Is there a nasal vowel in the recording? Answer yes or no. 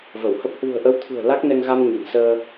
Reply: no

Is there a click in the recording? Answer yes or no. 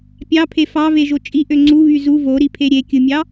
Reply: yes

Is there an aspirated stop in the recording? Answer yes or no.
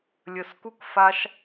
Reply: no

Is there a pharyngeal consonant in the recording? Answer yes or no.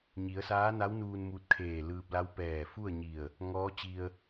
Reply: no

